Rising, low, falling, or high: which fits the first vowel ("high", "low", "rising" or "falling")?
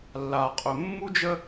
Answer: low